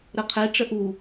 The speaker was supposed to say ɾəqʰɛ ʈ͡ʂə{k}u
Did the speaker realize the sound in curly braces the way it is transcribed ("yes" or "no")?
no